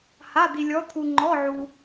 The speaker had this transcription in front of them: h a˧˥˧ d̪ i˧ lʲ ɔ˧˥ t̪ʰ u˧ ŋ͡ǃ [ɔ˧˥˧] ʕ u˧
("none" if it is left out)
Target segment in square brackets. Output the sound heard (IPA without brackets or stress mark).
ɔ˧˥˧